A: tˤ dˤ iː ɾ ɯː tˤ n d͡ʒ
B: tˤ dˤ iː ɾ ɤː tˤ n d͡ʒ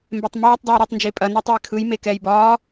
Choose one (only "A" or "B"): A